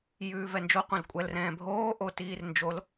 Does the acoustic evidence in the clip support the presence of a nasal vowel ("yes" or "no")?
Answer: yes